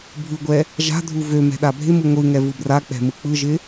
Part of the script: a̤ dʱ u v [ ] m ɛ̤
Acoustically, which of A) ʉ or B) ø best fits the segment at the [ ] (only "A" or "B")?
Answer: B